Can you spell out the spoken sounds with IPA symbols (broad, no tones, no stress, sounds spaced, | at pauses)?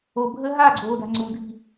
o bʱ əː ɦ a ɡ͡ǀ oː d a̤ ŋ͡ǀ u dʱ i̤